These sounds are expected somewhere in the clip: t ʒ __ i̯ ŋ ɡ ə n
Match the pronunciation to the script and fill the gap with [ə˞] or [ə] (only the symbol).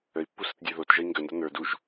ə